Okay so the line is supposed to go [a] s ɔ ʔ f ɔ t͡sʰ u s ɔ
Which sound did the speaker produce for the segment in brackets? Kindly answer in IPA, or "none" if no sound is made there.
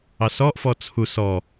ɑ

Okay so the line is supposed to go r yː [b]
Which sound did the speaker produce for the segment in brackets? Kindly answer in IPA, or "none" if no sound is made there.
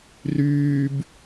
b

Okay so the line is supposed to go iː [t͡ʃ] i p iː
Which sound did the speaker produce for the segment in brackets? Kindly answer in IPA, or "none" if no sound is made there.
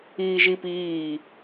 ʒ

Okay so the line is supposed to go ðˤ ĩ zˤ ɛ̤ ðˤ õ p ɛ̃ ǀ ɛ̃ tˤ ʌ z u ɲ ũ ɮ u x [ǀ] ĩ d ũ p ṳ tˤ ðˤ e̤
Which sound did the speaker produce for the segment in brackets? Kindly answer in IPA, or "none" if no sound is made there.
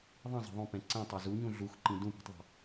ǃ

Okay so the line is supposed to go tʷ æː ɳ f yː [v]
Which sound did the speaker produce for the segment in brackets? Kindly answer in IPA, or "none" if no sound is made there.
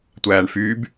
b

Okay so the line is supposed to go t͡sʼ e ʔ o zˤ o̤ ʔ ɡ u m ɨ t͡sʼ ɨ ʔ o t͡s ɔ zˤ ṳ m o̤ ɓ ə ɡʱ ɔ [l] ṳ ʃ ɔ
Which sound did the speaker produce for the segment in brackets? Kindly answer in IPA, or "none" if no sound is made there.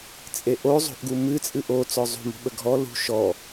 l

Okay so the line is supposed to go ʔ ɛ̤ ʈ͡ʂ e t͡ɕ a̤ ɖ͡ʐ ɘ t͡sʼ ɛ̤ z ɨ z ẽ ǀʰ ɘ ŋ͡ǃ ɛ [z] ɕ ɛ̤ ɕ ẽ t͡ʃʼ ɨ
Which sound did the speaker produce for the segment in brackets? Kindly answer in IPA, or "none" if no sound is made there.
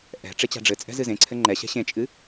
none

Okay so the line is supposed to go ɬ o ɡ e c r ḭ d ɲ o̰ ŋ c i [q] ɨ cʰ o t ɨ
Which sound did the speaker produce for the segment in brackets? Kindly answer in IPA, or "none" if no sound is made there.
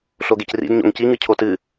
ŋ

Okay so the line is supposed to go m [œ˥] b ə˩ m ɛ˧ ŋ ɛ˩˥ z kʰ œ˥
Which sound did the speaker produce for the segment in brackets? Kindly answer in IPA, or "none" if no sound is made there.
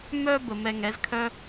œ˥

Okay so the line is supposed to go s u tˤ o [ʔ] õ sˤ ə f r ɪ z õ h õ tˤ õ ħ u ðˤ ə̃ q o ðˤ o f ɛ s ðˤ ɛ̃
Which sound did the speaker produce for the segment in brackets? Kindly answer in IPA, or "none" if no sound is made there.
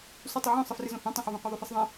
ʕ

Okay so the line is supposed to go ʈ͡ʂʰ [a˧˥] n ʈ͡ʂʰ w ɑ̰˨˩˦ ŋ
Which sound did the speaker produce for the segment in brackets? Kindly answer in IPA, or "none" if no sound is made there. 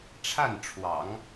a˥˩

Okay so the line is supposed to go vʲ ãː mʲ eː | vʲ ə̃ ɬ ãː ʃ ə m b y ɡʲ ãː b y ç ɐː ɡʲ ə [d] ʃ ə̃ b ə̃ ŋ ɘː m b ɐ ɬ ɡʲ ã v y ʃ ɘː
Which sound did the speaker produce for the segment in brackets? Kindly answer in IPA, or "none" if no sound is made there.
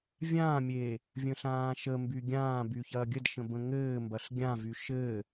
d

